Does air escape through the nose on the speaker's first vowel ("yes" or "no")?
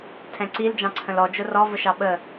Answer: yes